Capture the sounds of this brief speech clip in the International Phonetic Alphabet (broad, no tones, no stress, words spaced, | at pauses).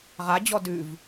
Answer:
ʁad͡ʑɔ dʉv